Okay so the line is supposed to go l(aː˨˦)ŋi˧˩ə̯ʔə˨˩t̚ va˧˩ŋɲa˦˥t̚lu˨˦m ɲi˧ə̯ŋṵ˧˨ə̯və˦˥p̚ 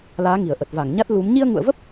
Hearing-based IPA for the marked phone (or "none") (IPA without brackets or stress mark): aː˨˦